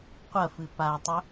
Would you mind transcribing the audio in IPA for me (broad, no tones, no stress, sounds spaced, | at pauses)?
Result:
qʷ ɐ f ɨ p a tˤ ɵ